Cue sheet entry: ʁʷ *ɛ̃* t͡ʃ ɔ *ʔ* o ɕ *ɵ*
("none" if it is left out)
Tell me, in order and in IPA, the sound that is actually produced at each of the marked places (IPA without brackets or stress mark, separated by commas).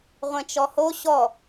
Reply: ɛ̃, h, ɔ